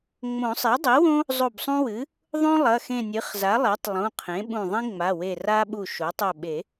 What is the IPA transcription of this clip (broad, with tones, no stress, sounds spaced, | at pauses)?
ŋ͡m õ˨˩˦ sˤ e˩˥ dˤ i˩˥ w õ˦ | zˤ o˧˩ b sˤ ũ˦ w ɨ˩˥ | ðˤ õ˦ lˠ ɐ˩˧˩ x ẽ˧˩ nʲ ɨ˩˥ χ z a˩˥ lˠ e˩˥ tˤ lˠ ũ˩˧˩ qʰ ẽ˩˥ ɓ ũ˧˩ ðˤ ĩ˦ ŋ͡m a˩˧˩ w e˧˩ r a˦ ɓ u˧˩ ʃ o˩˥ tˤ ɵ˧˩ ɓ e˨˩˦